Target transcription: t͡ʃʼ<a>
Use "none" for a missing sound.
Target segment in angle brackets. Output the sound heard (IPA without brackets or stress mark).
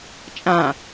ã